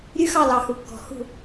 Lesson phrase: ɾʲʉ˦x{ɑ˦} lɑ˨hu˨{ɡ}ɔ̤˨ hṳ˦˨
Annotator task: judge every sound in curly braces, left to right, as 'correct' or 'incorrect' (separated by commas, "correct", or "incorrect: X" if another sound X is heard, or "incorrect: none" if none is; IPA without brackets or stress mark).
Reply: incorrect: ɑ˦˨, incorrect: kː